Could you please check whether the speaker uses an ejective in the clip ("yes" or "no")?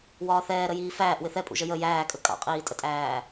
yes